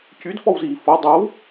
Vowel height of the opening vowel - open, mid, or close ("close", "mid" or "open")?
close